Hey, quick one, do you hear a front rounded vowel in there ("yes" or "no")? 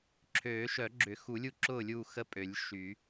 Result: yes